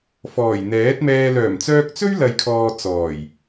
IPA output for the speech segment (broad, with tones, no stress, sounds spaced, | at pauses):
f ɔː˨˩ j n̪ ɛː˨˥ t̚ m ɛː˧ l œː˨˩ m t͡s œː˧ k̚ t͡s ɵ˥ ɥ l ɐ˨ j kʰ ɔː˨ t͡s ɔː˨˩ j